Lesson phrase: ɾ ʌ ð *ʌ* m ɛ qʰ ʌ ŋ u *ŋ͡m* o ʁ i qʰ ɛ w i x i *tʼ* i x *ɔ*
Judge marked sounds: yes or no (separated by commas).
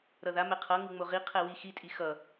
no, yes, yes, no